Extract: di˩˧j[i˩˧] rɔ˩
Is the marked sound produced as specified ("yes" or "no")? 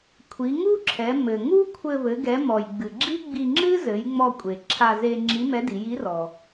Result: no